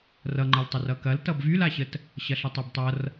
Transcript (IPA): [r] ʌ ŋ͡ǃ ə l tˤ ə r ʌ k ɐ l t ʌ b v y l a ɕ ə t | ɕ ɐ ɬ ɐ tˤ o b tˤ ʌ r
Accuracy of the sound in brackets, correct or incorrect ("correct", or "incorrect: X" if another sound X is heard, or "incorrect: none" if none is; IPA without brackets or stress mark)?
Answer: correct